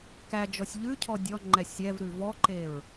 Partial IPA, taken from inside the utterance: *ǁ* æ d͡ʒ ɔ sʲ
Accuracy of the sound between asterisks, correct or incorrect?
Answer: incorrect